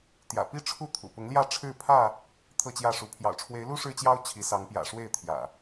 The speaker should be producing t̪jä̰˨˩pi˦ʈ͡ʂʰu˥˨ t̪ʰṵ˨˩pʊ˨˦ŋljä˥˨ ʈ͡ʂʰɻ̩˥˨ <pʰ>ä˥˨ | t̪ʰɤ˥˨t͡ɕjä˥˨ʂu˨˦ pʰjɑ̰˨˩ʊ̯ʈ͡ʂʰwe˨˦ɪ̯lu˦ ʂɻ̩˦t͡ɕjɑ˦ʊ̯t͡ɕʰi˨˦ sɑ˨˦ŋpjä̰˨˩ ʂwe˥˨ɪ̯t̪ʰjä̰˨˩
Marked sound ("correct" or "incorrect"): correct